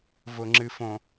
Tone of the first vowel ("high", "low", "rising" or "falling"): low